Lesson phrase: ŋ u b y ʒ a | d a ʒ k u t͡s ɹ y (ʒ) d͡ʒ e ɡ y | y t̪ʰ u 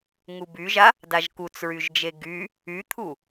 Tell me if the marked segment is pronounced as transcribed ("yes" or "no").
yes